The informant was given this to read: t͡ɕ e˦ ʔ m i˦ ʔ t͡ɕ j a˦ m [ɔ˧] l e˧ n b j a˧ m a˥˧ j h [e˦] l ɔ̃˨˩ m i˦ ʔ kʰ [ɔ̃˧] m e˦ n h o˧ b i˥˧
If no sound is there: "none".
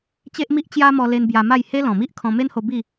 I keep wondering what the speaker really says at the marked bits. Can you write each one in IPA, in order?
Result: ɔ˧, e˦, ɔ̃˧

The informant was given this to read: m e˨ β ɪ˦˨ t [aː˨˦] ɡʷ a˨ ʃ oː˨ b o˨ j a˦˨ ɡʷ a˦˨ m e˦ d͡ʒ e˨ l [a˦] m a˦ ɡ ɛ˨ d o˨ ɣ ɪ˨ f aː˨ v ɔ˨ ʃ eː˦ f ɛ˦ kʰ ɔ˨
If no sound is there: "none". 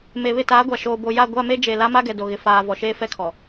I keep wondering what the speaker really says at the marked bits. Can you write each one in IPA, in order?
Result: aː˨˦, a˦

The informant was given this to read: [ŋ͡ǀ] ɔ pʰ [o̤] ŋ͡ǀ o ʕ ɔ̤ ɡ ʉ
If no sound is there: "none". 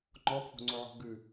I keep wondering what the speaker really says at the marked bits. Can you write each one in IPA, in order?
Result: ŋ͡ǃ, o̤

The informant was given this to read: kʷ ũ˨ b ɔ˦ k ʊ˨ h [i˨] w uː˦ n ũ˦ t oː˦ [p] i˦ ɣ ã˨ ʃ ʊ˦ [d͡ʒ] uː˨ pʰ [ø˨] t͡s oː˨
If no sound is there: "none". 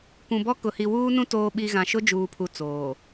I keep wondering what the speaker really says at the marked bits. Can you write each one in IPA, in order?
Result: i˨, ɓ, d͡ʒ, u˨

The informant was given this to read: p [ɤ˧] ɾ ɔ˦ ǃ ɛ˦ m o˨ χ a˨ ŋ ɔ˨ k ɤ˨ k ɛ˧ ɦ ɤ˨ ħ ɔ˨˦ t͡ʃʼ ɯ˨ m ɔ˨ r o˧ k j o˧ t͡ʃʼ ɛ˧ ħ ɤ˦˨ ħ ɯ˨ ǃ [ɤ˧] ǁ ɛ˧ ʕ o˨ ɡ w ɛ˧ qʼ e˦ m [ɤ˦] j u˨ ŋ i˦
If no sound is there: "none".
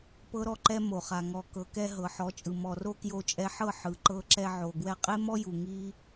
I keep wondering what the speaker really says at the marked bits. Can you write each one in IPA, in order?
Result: ɤ˦, ɤ˧, ɔ˦

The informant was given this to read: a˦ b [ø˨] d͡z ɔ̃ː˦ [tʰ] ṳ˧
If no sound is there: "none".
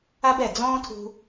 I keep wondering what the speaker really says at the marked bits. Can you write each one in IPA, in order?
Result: ɛ˨, tʰ

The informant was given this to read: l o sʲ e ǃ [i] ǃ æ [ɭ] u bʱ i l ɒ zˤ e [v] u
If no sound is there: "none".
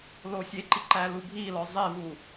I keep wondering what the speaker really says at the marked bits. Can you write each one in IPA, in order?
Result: i, l, v

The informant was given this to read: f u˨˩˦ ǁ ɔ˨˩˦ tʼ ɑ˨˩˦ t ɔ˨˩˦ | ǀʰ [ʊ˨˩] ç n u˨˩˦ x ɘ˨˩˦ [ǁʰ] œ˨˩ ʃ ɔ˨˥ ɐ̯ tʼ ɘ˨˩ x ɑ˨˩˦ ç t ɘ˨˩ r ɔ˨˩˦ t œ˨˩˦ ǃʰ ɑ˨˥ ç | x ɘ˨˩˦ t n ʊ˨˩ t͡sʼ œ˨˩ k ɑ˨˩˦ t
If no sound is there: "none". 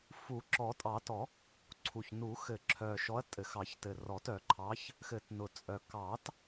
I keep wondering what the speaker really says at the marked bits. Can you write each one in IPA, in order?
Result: u˨˩, ǁʰ

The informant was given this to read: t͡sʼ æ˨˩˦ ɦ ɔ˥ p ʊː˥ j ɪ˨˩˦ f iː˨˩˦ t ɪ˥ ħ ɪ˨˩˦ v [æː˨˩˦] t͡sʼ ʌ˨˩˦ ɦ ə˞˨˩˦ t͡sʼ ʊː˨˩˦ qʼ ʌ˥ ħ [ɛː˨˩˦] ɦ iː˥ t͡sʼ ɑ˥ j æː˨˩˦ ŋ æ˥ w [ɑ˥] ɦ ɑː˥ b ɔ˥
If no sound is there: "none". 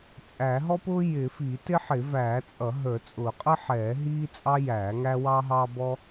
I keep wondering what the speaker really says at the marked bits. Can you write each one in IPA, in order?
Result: æː˨˩˦, ɛː˨˩˦, ɑː˥

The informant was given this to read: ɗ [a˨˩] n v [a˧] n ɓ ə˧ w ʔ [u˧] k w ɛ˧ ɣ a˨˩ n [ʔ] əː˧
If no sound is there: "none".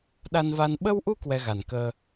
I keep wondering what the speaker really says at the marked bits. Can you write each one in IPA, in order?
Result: a˧, a˧, u˧, k

